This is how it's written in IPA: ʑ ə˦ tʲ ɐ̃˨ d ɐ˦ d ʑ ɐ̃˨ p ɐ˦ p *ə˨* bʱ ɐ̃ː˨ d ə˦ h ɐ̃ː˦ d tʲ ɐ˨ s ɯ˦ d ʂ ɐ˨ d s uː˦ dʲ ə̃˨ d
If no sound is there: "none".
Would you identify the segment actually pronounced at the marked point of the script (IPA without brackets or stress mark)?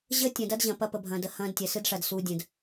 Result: ə˨